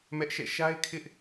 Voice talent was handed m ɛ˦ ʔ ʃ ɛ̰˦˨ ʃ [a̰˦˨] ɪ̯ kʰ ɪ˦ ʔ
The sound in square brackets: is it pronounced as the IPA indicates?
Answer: no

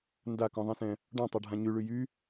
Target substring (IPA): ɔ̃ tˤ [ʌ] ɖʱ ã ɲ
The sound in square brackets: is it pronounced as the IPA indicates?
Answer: no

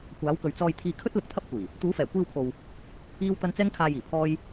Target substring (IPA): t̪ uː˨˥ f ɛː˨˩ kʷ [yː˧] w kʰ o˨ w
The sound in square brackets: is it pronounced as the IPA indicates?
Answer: no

